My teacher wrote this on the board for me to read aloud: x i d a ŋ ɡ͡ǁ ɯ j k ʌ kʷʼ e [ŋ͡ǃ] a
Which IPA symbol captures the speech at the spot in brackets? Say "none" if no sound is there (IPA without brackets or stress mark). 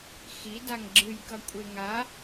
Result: ŋ